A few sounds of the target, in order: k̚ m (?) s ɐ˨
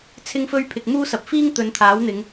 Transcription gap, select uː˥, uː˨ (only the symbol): uː˥